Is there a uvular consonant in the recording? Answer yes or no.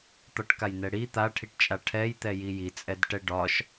no